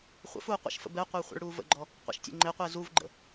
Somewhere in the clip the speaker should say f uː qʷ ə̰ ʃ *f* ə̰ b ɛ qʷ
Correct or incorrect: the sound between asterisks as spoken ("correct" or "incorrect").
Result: correct